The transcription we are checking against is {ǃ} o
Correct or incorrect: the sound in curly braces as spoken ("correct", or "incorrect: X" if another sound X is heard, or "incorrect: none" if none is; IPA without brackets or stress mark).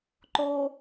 correct